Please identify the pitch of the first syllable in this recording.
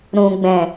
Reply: low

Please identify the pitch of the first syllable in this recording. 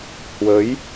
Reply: rising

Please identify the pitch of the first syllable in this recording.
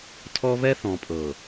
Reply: high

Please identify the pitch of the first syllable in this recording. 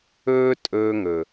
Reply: high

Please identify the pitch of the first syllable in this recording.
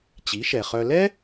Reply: rising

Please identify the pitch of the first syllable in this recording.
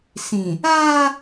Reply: low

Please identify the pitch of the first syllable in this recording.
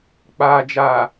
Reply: low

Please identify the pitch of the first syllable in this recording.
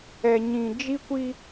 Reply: low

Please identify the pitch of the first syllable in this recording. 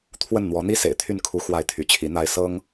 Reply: falling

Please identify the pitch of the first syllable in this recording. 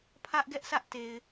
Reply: high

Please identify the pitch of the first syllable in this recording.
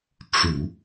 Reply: low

